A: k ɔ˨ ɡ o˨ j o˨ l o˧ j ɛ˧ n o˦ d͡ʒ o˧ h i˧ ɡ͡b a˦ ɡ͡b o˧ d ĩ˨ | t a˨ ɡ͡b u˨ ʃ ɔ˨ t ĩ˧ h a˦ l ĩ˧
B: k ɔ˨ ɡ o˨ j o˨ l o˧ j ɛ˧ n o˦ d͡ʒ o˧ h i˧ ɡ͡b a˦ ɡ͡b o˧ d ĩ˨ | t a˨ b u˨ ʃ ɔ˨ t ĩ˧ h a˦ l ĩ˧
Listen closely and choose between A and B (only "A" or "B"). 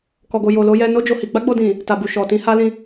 B